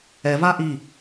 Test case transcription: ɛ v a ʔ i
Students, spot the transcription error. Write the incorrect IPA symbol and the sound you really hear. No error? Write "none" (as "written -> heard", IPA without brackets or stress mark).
none